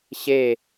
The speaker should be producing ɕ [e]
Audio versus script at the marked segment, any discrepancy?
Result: no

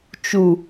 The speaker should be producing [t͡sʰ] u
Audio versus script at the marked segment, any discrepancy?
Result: yes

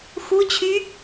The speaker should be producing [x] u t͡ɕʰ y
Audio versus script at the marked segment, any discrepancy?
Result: no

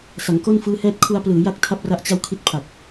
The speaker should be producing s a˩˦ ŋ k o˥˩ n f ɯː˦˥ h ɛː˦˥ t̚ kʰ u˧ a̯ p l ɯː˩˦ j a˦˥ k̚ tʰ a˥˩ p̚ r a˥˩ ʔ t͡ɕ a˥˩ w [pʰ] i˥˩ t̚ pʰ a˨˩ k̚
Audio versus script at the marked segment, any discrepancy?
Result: yes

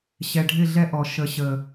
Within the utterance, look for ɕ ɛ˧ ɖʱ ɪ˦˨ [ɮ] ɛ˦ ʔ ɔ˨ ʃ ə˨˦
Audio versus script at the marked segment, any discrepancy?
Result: no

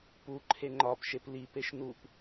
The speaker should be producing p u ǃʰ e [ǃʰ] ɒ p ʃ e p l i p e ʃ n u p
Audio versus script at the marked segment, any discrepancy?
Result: yes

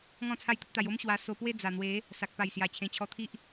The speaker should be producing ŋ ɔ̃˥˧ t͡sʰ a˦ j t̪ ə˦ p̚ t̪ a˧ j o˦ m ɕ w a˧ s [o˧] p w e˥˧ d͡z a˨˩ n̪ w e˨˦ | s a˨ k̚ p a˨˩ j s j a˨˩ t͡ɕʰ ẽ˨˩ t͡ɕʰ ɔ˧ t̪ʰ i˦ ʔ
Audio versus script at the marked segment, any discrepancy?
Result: no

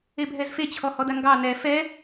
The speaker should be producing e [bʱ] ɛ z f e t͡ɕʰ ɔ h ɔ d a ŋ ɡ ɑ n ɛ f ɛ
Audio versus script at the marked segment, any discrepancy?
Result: no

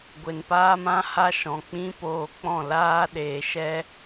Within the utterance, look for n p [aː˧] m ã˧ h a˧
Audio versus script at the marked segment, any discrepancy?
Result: no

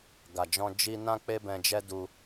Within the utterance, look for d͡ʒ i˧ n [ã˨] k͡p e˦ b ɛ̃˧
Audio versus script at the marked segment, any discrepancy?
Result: yes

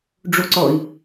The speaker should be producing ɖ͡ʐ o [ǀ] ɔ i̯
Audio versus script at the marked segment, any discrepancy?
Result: no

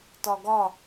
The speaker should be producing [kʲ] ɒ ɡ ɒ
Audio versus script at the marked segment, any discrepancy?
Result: yes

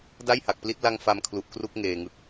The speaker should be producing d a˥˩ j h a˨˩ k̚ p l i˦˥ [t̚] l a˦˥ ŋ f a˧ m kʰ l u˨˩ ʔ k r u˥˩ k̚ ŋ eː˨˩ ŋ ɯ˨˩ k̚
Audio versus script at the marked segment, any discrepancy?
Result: no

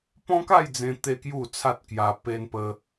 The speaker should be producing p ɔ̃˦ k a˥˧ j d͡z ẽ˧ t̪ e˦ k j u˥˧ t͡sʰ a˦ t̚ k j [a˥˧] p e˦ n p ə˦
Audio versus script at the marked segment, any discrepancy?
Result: yes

